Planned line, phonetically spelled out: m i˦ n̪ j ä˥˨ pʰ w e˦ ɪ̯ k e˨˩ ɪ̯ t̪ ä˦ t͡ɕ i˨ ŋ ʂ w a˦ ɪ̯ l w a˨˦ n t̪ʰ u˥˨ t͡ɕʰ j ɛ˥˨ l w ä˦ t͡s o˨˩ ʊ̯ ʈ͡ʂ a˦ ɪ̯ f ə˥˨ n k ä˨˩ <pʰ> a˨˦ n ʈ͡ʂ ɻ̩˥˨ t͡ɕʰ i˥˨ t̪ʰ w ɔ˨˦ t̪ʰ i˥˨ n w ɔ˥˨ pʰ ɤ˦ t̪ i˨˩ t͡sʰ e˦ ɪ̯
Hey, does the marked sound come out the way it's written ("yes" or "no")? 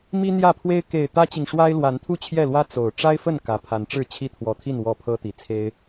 yes